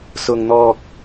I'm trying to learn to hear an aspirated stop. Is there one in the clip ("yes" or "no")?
no